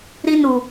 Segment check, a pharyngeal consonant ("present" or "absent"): absent